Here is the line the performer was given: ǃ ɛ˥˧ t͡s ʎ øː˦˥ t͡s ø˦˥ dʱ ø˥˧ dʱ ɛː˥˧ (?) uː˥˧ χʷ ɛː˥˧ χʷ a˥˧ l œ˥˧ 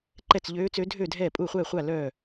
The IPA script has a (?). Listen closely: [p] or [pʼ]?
pʼ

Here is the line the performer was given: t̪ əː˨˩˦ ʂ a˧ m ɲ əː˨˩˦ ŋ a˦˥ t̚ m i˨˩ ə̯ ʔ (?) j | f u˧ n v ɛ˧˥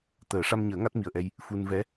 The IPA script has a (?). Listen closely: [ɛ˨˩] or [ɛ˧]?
ɛ˧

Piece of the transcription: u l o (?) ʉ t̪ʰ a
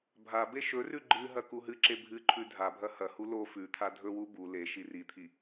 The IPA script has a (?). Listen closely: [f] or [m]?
f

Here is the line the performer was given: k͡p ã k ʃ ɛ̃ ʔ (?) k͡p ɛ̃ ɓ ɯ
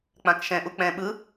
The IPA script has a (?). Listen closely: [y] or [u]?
u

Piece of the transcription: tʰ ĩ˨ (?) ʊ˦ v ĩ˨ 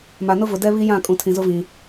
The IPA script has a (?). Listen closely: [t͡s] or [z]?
z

